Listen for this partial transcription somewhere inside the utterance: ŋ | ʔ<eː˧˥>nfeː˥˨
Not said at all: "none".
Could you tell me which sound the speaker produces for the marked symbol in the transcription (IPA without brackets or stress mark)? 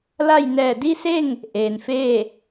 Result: eː˩